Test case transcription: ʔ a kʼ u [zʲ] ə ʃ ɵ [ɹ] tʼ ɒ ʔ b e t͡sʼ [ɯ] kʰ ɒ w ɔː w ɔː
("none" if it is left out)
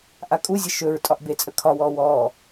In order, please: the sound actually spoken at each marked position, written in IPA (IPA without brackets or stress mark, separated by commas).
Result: zʲ, ɹ, ə